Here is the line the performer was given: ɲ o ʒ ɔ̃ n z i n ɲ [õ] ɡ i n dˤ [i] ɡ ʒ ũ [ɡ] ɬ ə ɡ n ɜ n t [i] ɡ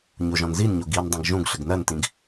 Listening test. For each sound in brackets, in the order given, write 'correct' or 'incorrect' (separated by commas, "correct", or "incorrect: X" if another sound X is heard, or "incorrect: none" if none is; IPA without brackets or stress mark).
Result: incorrect: o, incorrect: ĩ, correct, incorrect: ĩ